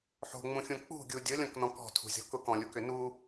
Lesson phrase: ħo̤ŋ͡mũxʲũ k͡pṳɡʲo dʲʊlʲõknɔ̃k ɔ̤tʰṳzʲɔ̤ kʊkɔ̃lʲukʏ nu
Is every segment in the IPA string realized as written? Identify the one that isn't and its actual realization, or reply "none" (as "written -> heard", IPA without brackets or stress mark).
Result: o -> u